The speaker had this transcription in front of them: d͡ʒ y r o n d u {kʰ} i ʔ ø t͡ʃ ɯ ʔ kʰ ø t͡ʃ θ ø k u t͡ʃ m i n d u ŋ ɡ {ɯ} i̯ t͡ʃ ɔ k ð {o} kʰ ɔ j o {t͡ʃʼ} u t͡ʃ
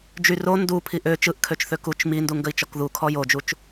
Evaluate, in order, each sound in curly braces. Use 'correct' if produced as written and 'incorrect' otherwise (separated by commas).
incorrect, incorrect, incorrect, incorrect